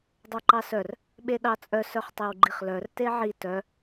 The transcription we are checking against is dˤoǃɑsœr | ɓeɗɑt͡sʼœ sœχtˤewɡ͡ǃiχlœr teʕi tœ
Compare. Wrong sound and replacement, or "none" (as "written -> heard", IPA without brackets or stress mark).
none